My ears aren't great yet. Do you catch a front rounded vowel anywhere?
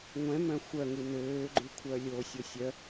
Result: yes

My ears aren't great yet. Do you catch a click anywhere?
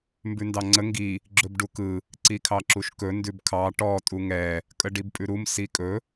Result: yes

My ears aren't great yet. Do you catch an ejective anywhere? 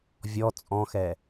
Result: yes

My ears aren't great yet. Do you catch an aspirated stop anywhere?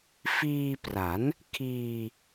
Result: yes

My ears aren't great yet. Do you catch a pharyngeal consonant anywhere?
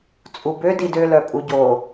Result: no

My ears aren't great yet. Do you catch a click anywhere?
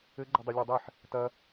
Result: yes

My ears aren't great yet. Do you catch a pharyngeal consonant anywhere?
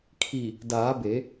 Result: no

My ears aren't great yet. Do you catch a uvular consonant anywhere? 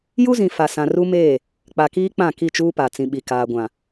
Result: no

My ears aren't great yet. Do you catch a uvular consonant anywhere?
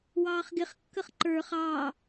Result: yes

